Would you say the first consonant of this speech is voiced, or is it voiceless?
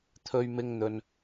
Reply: voiceless